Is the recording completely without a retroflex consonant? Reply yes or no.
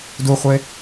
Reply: yes